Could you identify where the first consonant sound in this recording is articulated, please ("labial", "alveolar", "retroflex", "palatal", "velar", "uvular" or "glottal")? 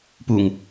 labial